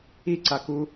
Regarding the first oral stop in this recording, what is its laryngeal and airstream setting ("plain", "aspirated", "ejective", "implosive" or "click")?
click